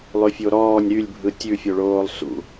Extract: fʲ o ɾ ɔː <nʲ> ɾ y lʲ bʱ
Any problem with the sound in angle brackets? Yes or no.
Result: no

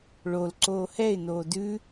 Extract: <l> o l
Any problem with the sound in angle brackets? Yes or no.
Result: yes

